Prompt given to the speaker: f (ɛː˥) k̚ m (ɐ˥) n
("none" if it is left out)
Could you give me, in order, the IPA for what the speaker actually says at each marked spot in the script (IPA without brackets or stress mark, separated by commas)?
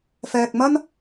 ɛː˧, ɐ˥